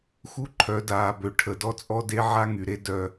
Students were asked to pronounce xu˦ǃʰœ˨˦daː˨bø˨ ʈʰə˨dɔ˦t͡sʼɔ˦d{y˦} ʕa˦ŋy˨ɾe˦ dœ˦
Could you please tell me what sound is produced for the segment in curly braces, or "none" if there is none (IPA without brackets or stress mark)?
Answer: e˦